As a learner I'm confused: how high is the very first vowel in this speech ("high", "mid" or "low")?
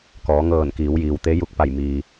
mid